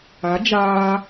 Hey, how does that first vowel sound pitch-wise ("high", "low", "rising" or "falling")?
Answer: rising